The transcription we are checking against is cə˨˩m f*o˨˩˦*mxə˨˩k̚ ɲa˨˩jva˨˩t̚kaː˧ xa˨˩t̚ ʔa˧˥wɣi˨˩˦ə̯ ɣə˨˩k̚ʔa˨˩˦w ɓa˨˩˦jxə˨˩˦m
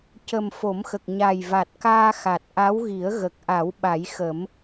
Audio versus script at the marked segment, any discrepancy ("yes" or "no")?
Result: no